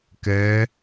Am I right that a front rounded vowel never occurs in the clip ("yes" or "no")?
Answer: yes